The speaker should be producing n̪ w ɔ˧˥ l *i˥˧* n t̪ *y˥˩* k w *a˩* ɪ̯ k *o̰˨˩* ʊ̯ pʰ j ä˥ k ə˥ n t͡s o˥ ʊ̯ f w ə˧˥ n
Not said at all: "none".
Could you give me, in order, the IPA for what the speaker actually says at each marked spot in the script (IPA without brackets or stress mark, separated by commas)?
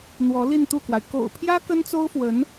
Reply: i˥˧, u˥˩, a˩, o̰˨˩